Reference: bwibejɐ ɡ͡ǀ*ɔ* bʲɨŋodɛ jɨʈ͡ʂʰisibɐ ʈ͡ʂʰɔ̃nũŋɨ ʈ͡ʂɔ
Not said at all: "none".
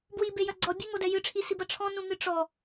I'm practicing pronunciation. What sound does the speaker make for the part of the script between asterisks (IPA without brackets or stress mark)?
ɔ